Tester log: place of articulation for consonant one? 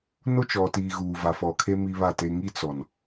alveolar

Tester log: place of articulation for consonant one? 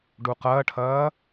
retroflex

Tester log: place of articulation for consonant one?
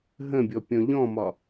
glottal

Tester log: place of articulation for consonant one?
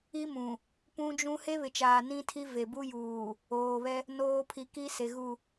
labial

